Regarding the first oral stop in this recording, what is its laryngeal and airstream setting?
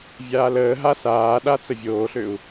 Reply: implosive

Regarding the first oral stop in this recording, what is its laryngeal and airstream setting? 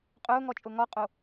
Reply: ejective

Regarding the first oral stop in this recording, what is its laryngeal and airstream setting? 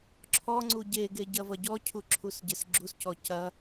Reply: click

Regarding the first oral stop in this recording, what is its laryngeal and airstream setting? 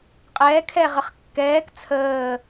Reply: ejective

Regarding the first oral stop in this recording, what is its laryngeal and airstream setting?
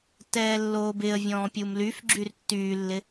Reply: plain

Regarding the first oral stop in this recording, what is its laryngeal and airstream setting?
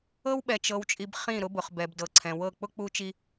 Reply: implosive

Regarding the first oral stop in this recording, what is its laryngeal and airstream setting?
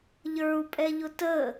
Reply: ejective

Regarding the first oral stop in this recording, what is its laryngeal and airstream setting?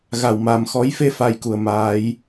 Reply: plain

